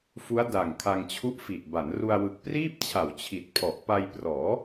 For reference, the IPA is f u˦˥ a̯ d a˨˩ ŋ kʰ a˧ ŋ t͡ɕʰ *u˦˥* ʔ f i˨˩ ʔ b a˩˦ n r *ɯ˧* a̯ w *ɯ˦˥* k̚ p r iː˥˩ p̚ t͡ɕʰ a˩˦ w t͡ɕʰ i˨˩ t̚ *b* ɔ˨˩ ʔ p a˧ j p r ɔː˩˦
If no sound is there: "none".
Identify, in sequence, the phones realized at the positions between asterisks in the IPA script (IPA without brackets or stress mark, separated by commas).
u˦˥, u˧, ɯ˨˩, pʰ